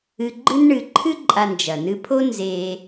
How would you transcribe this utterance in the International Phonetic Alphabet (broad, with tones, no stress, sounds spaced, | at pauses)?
ɨ˨ ɡ͡ǃ ɨ˦ n ɳ ɨ˨ ǃʰ ɨ˦ ǃʼ a˨ n d͡ʒ ɐ˩ n ɨ˨ pʰ o˦ n z e˨